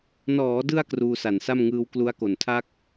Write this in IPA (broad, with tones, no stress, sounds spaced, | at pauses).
n ɔː˩˦ d ɯ˧ a̯ k r uː˧ s a˨˩ n s a˥˩ m ŋ ɯː˦˥ w k l u˦˥ a̯ k o˨˩ n tʰ a˥˩ k̚